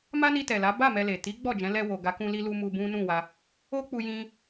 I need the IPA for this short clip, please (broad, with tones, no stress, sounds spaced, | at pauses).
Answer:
m a˦ n i˧ t ɛ˨ l a˨˦ b a˦˨ m ɛ˧ l e˨ t i˨˦ ɡ͡b ɔ˦˨ d͡ʒ ɛ̃˨˦ l ɛ˧ w o˨ ɡ a˨˦ k ũ˧ l i˧ l u˧ m u˧ b ũ˦ n ũ˦˨ w a˧ | o˦ k͡p u˧ j ĩ˧